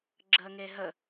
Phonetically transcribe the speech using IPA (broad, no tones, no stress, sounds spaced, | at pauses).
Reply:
ɡ͡ǁ əː ŋ e ɦ ə